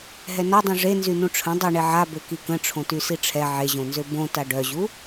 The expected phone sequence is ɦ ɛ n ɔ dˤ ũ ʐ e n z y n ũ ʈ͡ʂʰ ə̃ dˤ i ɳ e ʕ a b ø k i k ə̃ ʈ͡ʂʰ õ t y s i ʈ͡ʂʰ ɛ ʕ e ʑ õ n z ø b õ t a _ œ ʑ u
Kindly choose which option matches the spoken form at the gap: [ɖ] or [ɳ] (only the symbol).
ɖ